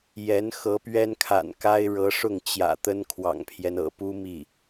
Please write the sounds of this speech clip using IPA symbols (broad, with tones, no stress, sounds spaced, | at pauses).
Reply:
j ɛ˧˥ n x ɤ˧˥ p ɥ ɛ˥ n kʰ a̰˨˩ n k a˥ ɪ̯ ɻ ɤ˧˥ ʂ ʊ˥˩ ŋ t͡ɕ j ä̰˨˩ t̪ ə˥ n kʰ w ɑ̰˨˩ ŋ pʰ j ɛ˦ n ɤ̰˨˩ p u˥ m i˥˩